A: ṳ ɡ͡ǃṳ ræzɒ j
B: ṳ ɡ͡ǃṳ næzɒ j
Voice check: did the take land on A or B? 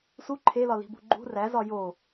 A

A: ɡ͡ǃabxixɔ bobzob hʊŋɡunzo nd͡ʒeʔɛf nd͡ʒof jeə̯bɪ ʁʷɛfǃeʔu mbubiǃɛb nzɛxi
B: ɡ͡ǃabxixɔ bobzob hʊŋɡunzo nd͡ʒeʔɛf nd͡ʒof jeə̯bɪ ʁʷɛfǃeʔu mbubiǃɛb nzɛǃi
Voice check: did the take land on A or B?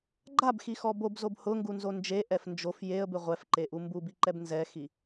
A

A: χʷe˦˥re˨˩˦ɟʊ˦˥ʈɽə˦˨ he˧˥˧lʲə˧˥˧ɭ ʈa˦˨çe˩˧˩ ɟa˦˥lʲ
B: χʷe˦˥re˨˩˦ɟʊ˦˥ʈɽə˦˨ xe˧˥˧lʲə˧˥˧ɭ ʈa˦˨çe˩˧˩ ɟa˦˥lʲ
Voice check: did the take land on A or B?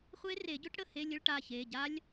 A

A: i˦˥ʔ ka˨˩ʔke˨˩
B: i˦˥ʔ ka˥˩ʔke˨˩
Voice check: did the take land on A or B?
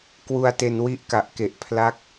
A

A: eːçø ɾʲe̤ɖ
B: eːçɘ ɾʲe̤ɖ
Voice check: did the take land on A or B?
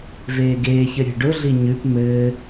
B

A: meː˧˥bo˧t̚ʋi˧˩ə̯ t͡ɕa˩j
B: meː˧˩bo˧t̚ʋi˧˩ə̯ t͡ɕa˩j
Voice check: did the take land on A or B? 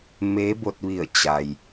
A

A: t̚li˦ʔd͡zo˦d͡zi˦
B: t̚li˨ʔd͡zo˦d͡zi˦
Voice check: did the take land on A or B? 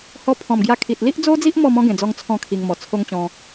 A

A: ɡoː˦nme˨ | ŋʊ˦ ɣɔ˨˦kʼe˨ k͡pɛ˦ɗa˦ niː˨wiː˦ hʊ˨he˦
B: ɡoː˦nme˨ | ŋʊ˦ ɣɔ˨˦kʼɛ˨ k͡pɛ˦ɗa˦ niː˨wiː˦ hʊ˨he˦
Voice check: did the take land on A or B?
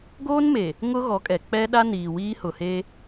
B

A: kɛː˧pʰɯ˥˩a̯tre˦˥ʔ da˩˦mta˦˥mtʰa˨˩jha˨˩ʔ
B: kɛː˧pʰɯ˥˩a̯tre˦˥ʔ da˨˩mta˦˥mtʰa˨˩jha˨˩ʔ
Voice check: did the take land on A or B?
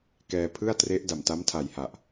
B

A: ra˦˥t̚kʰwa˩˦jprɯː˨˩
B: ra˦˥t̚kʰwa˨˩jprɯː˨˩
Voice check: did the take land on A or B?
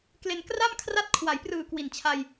A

